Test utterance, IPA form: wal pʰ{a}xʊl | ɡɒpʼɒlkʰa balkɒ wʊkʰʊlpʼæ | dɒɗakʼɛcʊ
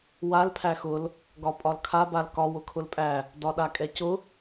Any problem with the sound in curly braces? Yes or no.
yes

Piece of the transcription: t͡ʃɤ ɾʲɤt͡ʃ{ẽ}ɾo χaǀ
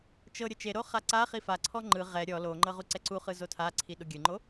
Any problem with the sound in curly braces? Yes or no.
yes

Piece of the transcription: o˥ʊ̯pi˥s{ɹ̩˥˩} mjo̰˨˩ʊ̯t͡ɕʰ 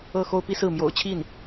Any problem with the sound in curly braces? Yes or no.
no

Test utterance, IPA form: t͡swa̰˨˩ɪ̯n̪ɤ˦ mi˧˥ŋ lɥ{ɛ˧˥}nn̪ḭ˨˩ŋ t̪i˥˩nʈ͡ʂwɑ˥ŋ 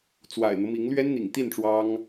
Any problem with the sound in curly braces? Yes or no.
yes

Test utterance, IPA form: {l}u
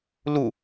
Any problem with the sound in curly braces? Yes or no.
no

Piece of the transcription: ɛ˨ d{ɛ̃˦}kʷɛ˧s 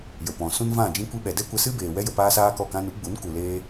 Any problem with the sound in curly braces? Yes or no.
yes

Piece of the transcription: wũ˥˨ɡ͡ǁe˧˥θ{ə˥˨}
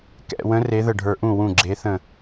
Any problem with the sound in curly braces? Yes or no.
yes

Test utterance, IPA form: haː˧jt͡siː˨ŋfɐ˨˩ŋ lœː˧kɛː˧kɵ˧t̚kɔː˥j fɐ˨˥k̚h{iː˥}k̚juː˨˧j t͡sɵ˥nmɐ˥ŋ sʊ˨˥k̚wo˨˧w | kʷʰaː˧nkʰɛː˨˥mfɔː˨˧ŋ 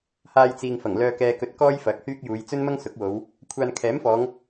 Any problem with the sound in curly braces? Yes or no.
yes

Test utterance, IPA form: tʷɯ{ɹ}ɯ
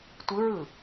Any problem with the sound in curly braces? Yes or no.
no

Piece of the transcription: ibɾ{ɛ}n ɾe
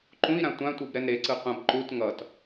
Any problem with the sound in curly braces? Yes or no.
no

